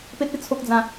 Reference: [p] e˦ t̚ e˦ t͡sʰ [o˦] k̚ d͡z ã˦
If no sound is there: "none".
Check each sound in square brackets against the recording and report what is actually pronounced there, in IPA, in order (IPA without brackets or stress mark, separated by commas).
p, o˦